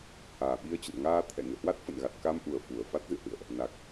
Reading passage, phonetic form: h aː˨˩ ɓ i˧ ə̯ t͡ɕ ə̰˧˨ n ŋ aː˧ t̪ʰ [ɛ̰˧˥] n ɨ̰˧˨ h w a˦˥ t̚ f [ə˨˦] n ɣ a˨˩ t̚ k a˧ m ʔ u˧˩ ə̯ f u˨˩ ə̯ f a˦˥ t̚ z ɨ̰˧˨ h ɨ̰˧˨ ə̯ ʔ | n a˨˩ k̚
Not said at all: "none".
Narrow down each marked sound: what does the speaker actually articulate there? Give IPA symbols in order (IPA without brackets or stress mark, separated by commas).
ɛ̰˧˨, ə̰˧˨